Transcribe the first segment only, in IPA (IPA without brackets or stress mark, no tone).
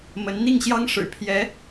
m